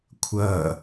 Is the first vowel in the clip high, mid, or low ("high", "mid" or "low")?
mid